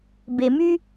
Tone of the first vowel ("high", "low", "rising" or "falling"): low